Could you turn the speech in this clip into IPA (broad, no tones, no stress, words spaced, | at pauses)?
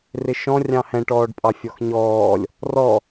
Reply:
rɪʃɔ̃ rʲɑ̃hɛ̃ ʈɔːɖpʼɑfʲɔxɲɔːlʲ | rɔ